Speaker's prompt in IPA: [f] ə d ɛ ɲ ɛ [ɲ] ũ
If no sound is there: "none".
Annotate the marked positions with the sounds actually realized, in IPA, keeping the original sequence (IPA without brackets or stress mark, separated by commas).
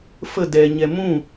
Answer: f, m